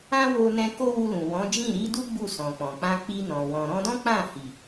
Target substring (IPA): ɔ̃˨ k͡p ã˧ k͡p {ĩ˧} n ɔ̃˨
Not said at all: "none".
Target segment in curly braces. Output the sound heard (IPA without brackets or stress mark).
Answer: i˧